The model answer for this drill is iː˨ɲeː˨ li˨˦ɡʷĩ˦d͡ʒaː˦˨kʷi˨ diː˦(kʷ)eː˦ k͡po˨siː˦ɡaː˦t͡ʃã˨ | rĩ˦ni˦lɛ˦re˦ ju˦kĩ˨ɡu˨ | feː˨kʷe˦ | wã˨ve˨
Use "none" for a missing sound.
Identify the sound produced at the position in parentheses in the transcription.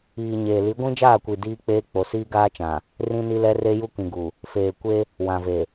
k͡p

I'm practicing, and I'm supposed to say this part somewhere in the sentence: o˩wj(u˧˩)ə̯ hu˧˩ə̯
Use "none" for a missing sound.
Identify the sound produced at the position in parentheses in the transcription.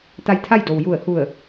u˧˩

